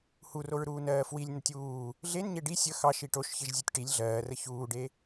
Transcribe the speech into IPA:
h u r o ɹ ɾ uː n ɜː f w i lʲ n ə tʲ uː | ɮ e n ɲ e ɖ i sʲ ə x ɑ ʃ i ʈ o ʃ ç e ʒ zʲ e tʲ ʈ i lʲ ɮ ɜː r ə ç uː ɖ e

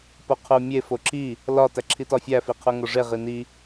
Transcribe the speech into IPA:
p o qʰ u mʲ e f o ǁ i | l ɒ t æ ǁʰ i t ɒ fʲ æ f i qʰ u ŋ o ʐ e ʁ i n i

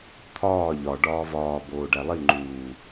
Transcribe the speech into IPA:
t̪ʰ ɒː ʎ ɒ ɖ ɒː v ɒː b oː ɖ æ lˠ i ŋ͡ǃ uː

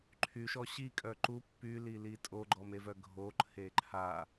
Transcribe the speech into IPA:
ǃʰ y ʃ ɔ ɕ i kʼ œ ǃ u pː y l i l i tʼ o ɡ͡ǃ ɔ m e v œ ɡʱ o ǃʰ e ǃʰ a

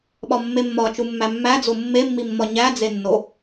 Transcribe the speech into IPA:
ɓ ɒ mː e mː ɒ t͡ʃ u mː æ mː æ d͡z o mː e mː i mː ɒ ɲ æ d͡z e nː o

